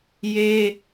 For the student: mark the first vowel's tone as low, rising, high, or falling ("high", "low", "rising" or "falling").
high